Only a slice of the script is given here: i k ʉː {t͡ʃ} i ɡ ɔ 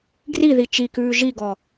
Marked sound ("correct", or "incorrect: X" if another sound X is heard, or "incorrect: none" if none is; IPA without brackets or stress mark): incorrect: ʒ